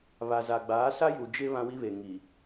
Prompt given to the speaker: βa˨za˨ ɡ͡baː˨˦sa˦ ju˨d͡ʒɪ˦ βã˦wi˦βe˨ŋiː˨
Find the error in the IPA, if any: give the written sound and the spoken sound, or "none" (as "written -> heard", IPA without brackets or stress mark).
iː˨ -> i˨